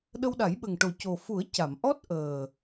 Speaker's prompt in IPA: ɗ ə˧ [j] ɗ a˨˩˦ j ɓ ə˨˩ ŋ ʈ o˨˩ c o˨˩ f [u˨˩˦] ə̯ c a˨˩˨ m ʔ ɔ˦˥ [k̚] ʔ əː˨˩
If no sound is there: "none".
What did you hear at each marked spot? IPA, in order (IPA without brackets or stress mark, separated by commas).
w, u˨˩˦, t̚